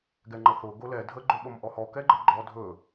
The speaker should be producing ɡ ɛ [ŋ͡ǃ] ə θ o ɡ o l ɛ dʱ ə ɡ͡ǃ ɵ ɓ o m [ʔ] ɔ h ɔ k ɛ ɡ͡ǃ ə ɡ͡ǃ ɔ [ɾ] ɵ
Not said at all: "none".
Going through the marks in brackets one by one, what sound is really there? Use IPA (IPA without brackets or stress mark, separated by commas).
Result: ŋ͡ǃ, ʔ, dʱ